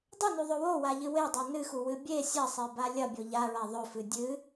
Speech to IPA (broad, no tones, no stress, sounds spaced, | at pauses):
dˤ ɵ n ʉ ðˤ ɵ w o w a ʎ ɨ w e dˤ o n ɨ x u w ɨ bʲ e sʲ ɐ sˤ e b a lʲ ɐ bʲ o ʎ a ɹ a ðˤ ɵ f ɨ dʲ ɨ